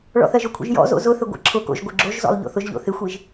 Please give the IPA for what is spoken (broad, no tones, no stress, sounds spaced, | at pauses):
ɭ ɔ̰ θ ɜ ʒ ʊ kʷʰ ḭ ʒ j ɔ̰ z o̰ z ʊ θ ɘ ɡʷ ḭ ǁʰ ʊ k o̰ ʒ ɡʷ ɘ ɡ͡ǁ o ʒ z ɔ̰ lˠ ʎ o̰ θ ʊ ʒ ʎ o̰ θ ɪ xʷ i ʒ